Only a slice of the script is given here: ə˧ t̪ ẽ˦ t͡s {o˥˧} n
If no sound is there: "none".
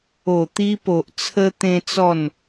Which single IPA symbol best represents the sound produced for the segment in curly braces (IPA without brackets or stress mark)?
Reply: ɔ˥˧